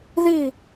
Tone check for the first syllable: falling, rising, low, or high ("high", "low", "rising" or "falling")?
falling